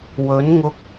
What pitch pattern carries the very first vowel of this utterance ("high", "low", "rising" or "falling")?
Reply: rising